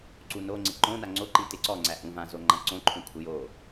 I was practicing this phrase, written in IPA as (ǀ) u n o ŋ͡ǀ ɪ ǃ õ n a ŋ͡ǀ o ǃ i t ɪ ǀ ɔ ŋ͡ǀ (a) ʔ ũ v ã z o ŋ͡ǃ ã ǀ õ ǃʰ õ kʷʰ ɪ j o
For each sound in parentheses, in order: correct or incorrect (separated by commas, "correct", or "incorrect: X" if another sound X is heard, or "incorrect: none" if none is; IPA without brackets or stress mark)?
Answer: correct, incorrect: æ